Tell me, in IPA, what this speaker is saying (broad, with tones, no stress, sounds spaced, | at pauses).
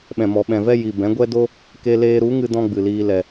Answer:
ɓ ɛ̃˨ m ɔ˨ ɓ ɛ̃˨ v ɛ˦ j i˨ b ɛ̃˨˦ ɡʷ ɛ˦ d o˦ | k e˧ l eː˧ ɾ u˨˦ ŋ ɨ˧ d ɔ̃˦ ɡ͡b ɨ˨ l iː˧ l ɛ˨